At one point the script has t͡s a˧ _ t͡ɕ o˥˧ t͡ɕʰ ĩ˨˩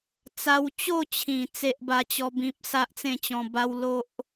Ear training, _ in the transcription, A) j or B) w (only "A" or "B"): B